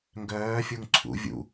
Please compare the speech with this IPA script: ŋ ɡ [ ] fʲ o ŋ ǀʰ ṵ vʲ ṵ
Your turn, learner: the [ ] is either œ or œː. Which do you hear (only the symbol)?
œː